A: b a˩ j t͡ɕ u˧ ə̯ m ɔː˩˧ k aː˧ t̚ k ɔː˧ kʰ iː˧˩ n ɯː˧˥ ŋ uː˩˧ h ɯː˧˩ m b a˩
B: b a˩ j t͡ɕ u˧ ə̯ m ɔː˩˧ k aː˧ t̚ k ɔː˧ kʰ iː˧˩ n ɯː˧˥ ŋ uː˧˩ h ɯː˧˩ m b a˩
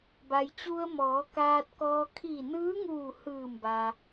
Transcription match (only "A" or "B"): B